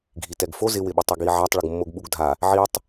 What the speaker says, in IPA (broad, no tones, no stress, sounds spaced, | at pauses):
ɡʱ i t ɛ ɡ f o z ɪ w ɪ ɓ ɪ tˤ i ɡ i ʕ a tˤ ɭ ʊ ɡ mː o ɡ ɓ u ɡ dʱ a | ʕ i tˤ